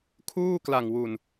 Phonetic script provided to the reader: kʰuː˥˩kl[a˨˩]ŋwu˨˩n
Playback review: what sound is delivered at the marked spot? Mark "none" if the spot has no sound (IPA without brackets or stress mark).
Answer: a˨˩